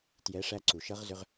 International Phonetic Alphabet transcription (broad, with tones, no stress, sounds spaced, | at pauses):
t j ɛ˩˧ ʂ æ˧ ǀ u˩ ʃ ʌ˧˥ ʁ z ʏ˧ ʁ